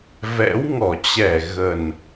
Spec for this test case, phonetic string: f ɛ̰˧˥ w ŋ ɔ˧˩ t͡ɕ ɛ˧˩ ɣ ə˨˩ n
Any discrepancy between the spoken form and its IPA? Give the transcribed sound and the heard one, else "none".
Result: f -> v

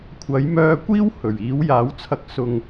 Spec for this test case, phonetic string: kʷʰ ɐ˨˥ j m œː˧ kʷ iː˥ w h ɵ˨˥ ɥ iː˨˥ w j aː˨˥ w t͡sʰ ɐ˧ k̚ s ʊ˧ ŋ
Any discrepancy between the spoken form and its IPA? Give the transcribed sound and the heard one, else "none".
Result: ɵ˨˥ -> ɵ˨˩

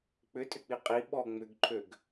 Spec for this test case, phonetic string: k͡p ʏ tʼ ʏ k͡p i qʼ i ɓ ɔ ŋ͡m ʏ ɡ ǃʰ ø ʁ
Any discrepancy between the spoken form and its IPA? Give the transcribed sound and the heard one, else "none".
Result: ʁ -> ɡ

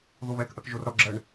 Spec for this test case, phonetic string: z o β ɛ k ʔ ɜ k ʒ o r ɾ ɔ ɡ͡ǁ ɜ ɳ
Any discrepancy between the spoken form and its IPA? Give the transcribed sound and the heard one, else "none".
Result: z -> ð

